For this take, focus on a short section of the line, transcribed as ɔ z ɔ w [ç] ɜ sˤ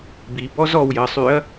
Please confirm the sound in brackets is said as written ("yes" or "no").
no